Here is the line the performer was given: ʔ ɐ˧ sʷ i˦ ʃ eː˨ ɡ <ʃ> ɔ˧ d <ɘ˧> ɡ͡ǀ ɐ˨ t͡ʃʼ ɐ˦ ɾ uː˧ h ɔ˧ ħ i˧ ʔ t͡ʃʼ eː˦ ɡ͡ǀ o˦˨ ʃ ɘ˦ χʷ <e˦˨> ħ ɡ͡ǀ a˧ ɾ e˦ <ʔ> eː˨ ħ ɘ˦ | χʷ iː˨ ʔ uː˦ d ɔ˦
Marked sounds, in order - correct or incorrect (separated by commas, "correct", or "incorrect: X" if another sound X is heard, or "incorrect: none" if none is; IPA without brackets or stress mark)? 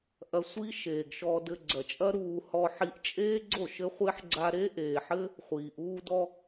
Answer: correct, correct, incorrect: e˦, correct